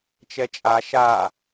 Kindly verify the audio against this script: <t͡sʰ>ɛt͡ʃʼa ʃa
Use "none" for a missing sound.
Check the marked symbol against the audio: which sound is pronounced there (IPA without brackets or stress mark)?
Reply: t͡ʃ